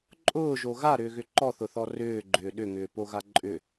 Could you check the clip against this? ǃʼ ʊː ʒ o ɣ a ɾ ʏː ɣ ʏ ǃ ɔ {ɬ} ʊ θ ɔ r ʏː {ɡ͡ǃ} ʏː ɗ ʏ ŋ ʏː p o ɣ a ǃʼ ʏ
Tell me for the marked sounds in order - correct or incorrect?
incorrect: θ, correct

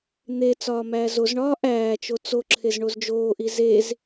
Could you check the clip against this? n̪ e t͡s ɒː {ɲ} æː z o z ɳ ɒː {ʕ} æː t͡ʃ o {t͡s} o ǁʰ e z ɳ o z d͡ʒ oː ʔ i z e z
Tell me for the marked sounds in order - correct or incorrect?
incorrect: m, incorrect: ʔ, correct

